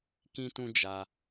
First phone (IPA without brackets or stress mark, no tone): k